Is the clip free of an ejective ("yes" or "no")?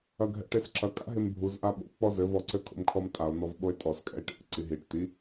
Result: no